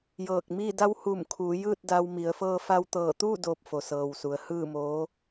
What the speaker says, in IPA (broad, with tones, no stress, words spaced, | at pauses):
jɤː˧˩k̚miː˥˨ da˧˥whuː˧˩mkʰuː˩˧ jɯː˥˨t̚da˧wmi˩˧ə̯ fɤː˧fa˧wt̪ɤː˧˩t̪uː˥˨ doː˧p̚fo˩sɤː˩wsu˩ə̯ hɯː˥˨moː˧˥